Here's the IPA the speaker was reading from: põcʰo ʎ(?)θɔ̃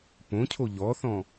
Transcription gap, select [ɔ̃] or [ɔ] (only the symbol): ɔ